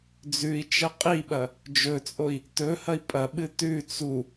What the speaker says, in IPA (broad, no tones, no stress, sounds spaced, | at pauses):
d͡z ʉ i̯ t͡ʃ ɐ qʼ i ɓ ɐ | d͡ʒ ɵ t͡sʼ o i̯ | t ɵ h ɐ i̯ pʼ ɐ ɓ ɨ t ʉ t͡s u